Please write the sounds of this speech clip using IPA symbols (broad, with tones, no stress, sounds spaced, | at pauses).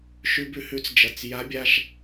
ʃ ʉ˧ b ʉ˧ h ʉ˨˥ t͡s d͡ʒ ɐ˩˧˩ t͡s j a˨˥ bʲ a˩˧˩ ʃ